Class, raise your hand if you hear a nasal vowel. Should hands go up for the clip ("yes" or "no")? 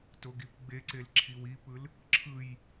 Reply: no